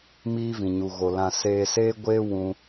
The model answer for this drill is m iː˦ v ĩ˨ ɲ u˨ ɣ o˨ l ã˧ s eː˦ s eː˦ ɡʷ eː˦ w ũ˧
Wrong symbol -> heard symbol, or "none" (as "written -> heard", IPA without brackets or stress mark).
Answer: none